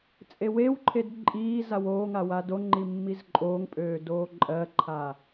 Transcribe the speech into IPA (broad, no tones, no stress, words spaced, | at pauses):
t͡sʼewewǃʰed ǃʼiː zawoːŋa wadoŋ͡ǃi mːizǃʼoːŋpʼøː doːǃʼɜǃʰa